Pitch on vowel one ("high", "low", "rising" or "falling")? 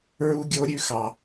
high